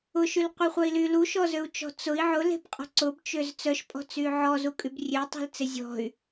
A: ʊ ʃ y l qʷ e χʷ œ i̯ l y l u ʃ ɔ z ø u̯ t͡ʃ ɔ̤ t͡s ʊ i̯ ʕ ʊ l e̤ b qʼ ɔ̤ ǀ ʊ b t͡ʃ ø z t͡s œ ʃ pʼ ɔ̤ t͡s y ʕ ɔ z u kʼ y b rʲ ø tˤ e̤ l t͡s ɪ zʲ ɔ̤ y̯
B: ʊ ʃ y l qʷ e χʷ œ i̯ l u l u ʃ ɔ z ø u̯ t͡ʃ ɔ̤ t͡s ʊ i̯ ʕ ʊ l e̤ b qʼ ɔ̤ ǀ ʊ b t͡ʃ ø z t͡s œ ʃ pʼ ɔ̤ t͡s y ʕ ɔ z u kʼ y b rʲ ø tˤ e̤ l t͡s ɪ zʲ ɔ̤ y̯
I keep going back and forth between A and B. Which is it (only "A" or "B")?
A